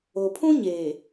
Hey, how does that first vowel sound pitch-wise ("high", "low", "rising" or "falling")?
low